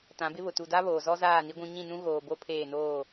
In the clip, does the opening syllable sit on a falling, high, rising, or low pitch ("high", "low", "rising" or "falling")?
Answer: rising